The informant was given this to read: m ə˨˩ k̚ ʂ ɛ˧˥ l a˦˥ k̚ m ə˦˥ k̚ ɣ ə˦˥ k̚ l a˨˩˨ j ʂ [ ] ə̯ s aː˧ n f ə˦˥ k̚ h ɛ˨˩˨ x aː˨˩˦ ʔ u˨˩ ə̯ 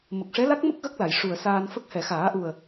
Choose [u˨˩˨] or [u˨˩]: u˨˩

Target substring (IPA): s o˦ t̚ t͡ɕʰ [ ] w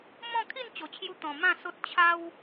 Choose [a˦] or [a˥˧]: a˦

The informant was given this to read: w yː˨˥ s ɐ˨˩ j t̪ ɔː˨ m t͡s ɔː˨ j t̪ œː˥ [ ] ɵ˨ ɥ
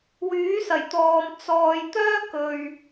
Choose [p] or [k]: k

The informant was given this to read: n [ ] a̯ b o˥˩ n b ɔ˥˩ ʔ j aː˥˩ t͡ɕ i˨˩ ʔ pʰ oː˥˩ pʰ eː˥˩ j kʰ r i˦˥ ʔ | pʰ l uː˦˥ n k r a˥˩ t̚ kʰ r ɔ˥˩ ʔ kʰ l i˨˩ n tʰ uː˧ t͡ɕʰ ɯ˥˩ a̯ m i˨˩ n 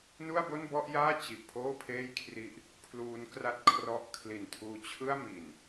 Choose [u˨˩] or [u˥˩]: u˥˩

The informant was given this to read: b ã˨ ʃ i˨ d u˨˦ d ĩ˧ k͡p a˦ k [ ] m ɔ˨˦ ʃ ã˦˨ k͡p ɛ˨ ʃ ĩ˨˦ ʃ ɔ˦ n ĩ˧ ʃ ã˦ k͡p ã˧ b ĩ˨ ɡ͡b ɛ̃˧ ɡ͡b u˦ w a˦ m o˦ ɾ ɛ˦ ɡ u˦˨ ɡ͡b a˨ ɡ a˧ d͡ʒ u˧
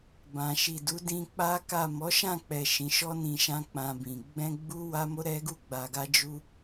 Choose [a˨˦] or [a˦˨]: a˦˨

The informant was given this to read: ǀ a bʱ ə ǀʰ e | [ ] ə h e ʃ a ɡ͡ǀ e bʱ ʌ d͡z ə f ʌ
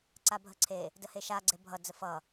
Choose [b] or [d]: d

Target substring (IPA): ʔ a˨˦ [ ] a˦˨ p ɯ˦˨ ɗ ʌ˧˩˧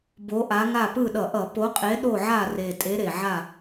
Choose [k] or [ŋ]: ŋ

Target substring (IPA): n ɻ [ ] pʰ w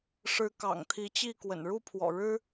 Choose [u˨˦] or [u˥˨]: u˥˨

